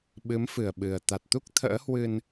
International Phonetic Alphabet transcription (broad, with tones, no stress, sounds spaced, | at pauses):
ɓ ɨ˨˦ m f ɨ˧˩ ə̯ ɓ ɨ˨˩ ə̯ t̪ a˨˩ t̚ t̪ u˦˥ k̚ t̪ʰ ə̰ː˧˥ h w ɨ˧ n